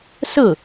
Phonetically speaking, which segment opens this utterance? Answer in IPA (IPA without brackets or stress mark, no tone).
s